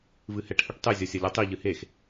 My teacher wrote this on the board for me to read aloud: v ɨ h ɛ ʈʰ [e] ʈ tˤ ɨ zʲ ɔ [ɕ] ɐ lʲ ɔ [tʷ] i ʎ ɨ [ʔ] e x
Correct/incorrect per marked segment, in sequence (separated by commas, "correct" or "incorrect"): incorrect, incorrect, incorrect, incorrect